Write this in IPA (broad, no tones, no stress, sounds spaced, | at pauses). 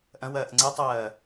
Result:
ʔ ɐ̃ w ɐː ʔ ŋ͡ǀ ɛ tˤ ɐː